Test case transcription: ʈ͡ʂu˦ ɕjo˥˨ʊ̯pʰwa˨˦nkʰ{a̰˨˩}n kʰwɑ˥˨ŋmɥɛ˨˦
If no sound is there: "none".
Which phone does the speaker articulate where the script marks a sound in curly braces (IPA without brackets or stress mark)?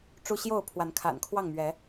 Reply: a̰˨˩